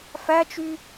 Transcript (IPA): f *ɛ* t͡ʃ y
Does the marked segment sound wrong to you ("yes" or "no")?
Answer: yes